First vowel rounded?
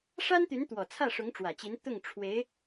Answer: no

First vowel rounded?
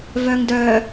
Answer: yes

